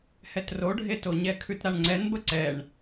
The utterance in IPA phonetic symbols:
h ɛ t r o ɖʱ e t o ɲ ɛ kʰ ʉ t ɾ a ɳ ŋ͡ǀ ɛ n b ə ǀ ɛ ɳ

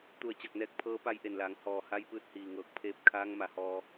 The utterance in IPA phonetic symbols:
t̪ u˧˩ ə̯ t͡ɕ a˧˩ k̚ n ɛː˧˥ k̚ pʰ ɤː˧˥ p a˧˥ j ʔ e˩ n l aː˩˧ ŋ h ɔː˩ h a˧˥ j p ɯː˧ t̚ h iː˩ ŋ ɤː˧ k̚ pʰ eː˥˨ p̚ kʰ aː˧˥ ŋ m a˩˧ h ɔː˧

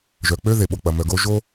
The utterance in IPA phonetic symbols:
ʒ œ˩ k͡p ø˥ ð e˩ ɓ o˩ k͡p ɐ˩ m œ˩ ɡ o˥ ʒ o˥

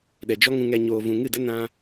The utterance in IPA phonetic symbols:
ɗ ɛ˨ d͡ʒ ɔ˦ ŋ ũ˧ ŋ ɛ˧ ɲ oː˨ v ũ˨ ŋ ɨ˦˨ d ə˦ n ã˦

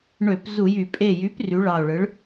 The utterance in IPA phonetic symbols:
ɳ ø˧˩˧ p z u˧˩˧ j y˧˩˧ pʼ e˧˩ j y˩˥ p r y˩˥ ɭ ɑ˧˩ o̯ ɭ ɯ˩˥ ɭ

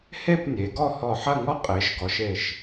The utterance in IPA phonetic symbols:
h e˥˧ p nʲ e˩˧ ɡ ɔ˥˧ h ɔ˧˩ ħ ɐ˥˧ ŋ ɔ˥ qʼ e˩˧ ʃ ɡ ɔ˩˧ ʃ e˧˩ ʃ

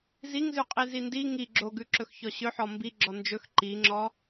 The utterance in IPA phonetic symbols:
z i ŋ z ʉ qʼ i z i n d i ŋ i ɡ͡ǁ o ɡ ʉ ǁ ɵ x ç ɔ ɕ ɵ ħ ɔ m b i ɡ͡ǁ ɔ n d͡ʒ ɵ x ǃ i ŋ͡ǁ ɔ

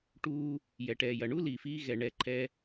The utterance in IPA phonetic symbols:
ʈ uː˧ | j ɛ˩ ʈ ɛː˩ j ɐ˩ ɳ u˥ l iː˩ f iː˧ ɣ ɛ˩ ɳ ɛ˩ ǃʰ ɛ˧

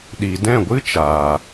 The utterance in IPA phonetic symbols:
ɗ i˨ d ɛ̃˦˨ ɡʷ ɨ˦ t͡ʃ aː˨

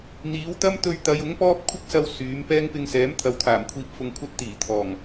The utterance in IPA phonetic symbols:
n̪ iː˨˥ w t̪ ɐ˥ m t̪ ɵ˧ ɥ t̪ ɐ˨˧ j ʊ˨˥ ŋ p ɔː˥ p̚ kʷʰ ɪ˥ k̚ s ɐ˧ w s yː˨˥ m p ɛː˥ ŋ p ɪ˧ ŋ s ɛː˨˥ m t̪ʰ ɐ˨ w t̪ʰ aː˨˩ m kʷʰ iː˧ p̚ f ʊ˧ ŋ kʷʰ ɐ˥ t̚ t̪ iː˨˩ t̪ʰ ɔː˨˩ ŋ

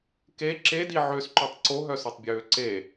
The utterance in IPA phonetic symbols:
k e ǁ e d i ʕ ø s ǃ ø tˤ ǀ o ɦ œ s ø tˤ bʲ øː ǀ e

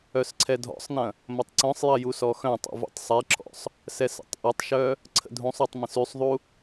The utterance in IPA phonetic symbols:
œ s ǀʰ ɛ dʱ ɔ̰ sˤ n ɐ̃ | m ɐ tˤ ǀ œ̃ sˤ j ɐ j u s ɔ x œ̃ tˤ ṵ v ṵ tˤ sˤ ɛ ǁ ɔ̰ sˤ | s ɛ s ə̰ tˤ ʔ ɪ tˤ ʃ œ | ǀʰ ə̰ dʱ ũ sˤ ɔ tˤ m ɐ̃ s y sˤ ðˤ u

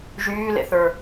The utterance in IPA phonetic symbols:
ʒ yː l ḛ θ ə˞

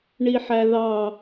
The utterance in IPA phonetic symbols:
ɳ i ħ æ ð ɑ

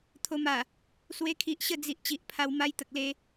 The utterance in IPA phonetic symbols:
t̪ʰ o˨˩ m a˨˩ | s w e˧ kʰ i˨ ʔ ɕ ə˥˧ d͡z i˨ ʔ t͡ɕ i˨ ʔ pʰ a˧ w m a˦ j t̪ ə˨ k̚ l e˧

